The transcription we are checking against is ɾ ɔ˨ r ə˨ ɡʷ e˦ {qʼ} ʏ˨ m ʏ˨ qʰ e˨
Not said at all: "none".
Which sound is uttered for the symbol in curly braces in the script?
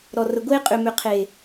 qʼ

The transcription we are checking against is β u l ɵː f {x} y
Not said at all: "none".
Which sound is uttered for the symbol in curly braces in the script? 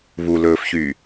ç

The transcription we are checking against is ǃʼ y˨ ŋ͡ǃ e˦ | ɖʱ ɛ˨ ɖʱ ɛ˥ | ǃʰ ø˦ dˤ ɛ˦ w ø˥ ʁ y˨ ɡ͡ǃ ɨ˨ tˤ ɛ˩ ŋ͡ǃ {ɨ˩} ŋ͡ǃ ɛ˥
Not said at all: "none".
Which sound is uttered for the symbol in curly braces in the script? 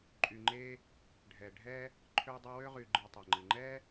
ɨ˩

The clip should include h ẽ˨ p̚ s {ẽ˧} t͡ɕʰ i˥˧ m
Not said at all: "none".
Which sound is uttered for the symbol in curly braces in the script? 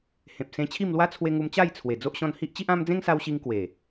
ẽ˧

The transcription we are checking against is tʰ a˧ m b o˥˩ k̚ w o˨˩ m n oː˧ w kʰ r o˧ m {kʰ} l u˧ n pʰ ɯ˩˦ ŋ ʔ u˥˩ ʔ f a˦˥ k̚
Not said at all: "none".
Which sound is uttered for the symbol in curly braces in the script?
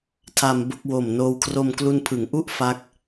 k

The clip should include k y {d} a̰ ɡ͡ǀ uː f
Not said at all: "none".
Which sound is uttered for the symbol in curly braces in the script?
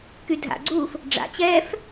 dʱ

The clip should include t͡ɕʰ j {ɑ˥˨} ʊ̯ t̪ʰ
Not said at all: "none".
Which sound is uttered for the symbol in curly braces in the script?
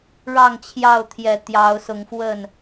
ɑ˥˨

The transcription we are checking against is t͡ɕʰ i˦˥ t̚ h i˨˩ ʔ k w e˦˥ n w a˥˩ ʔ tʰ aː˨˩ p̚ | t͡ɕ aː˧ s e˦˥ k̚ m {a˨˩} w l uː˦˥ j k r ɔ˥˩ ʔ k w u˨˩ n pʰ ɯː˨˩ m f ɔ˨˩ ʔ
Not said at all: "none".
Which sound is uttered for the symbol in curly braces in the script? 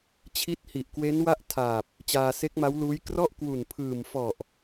a˦˥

